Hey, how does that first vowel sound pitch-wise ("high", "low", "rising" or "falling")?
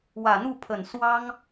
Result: low